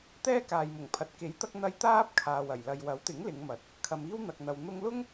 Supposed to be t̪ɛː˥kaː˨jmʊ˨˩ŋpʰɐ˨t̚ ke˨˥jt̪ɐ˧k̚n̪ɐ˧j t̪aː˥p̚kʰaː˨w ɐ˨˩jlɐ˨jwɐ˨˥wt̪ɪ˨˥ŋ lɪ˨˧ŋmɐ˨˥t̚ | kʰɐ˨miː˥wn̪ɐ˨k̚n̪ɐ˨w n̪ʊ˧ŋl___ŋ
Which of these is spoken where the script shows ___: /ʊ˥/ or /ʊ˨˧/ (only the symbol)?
ʊ˥